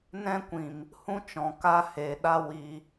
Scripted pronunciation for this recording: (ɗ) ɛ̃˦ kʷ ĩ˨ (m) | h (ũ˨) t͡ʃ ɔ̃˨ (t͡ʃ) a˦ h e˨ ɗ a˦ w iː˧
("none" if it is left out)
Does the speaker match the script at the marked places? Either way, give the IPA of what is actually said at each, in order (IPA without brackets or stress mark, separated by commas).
n, m, ũ˦, k